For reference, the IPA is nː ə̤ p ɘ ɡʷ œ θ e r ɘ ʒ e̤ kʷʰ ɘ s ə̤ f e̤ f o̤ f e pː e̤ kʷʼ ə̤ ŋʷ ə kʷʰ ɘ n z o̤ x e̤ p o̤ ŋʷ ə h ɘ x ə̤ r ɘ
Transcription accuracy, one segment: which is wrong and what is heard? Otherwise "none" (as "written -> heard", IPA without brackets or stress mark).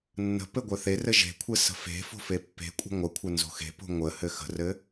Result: none